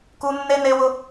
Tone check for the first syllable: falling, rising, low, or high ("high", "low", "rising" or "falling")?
high